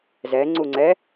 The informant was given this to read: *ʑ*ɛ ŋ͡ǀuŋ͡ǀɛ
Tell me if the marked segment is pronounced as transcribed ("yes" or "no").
no